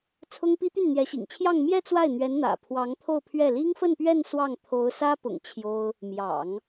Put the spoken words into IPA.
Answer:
t͡sʰʊ˥ŋpi˥ t̪y˥˩nn̪jɛ˧˥ɕḭ˨˩ŋt͡ɕʰjɑ˥˧ŋ mjɛ˥˧ t͡swa˥˩ɪ̯n̪ɥɛ˧˥n n̪ä̰˨˩ pʰwɑ˧˥ŋt̪ʰo˥˧ʊ̯pʰɥɛ˥˩ li˥ŋfə˥˧npɥɛ˥˧n swɑ˥˩ŋ t̪ʰo˧˥ʊ̯sä˥pʊ̰˨˩ŋ t͡ɕʰjo˥ʊ̯ | mjɑ̰˨˩˦ŋ

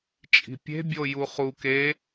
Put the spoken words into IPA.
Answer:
t͡ʃʼi̤pʲe̤bʲo juχu ke

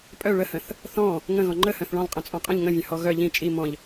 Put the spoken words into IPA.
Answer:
pʼœ ɭəhə̃θ | θɔ̃ | ŋə̃ɣɔ̃ ŋ͡ǃəhœ̃θ ɭɔ̃lˠqʼə̃t͡sʼɔ̃ qʼə̃ʎ ŋə̃vʲə̃hɔ ɣœ ʎĩ t͡ʃʼi mɔ̃ʎ

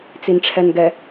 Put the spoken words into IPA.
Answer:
t͡sinʈ͡ʂʰɛnɡɛ

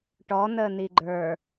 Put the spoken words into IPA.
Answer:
ʈɔn̪əːn̪i ɡ͡ǃə˞

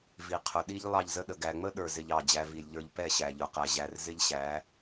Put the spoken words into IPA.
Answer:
vi˨qʰʊ˨ ɗi˦ʎ lˠɑ˦˨ʎzə˦ɗə˨ ɡæ˨ŋ͡mə˦ɗə˞˨ zɪ˧ʎɑ˦˨d͡ʑæ˧ vi˨lʲʎə˞˧ʎ pɛ˦˨ɕæ˨ʎʊ˨qæ˨ ʑæ˧rzɪ˦ʎɕæ˨˦

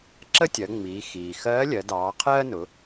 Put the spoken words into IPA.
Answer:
ǁə˥tʲɜ˩˧ ŋ͡miː˩˧xiː˩xɜː˧˥lʲɜ˩˧ dɑː˩˧qʰɜː˥nʊ˩˧

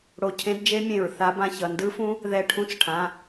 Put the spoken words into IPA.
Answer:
ɽo˧˩cʰẽ˦˥dd͡ʒe˦˥mʲẽ˧˩ɹ θa˦˥bã˦˥çʌ˩˧˩ ndɯ˦˥fũ˦˥ | ðɛ˧˩ʈʰũ˦˥t͡sʈʰã˩˧˩

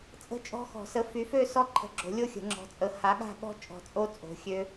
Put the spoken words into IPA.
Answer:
t͡sʼə̤˥˨t͡ʃʼɔ̤˦˥xɔ̤˨˩˦ sə˨˦fy˨˦fø˥˨sɔ˥˨ ǃʰə̤˨˦ɡ͡ǁo̤˨˩˦lʲo˥˨xʲə̤˨˩˦ ŋ͡ǁɔ̤˨˦t͡sʼə˨˦ ha˨˦ɠa̤˥˨ɠɔ̤˦˥ t͡ʃʼɔ̤˨˩˦t͡sʼo˦˥ t͡sʼo̤˨˦xʲø˦˥

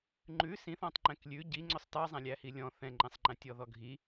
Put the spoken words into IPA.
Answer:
ŋ͡ǃʉ sĩθ ɔ̃tˤŋ͡ǃɛ̃klʲʉ ɟi ŋ͡ǀʊsˤtɑzˤæ̃lʲ æhilʲɔ̃ θɛ̃ŋ͡ǃɛ̃sˤŋ͡ǃæ̃ tʲɔðɔɡʱi

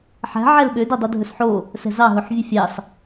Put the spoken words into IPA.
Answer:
ħæ̤ ʕɛlɓø dɛdˤudʱɵsħo | sɛ̤zɑ ɦɵħvʲɵfʲɑs

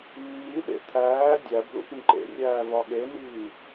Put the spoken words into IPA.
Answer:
mːiɗḛ t̪ʰæː dʲæb lṵpĩǃḛrʲæː vɒɠeniː

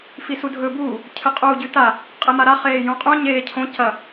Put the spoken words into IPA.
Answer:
fisudʱɵːbuː | cʰɨqʼuːɟʉta | qʼemaɾa χeːjũqʼũ ɲeːcʰõ cɐ

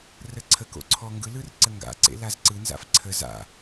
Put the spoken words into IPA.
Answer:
rəǀʰəko̰ ǀʰɔŋɡɯlɯr ǀəŋɡa̰ǀḛ lazǀɯnza̰f ǀʰə za̰

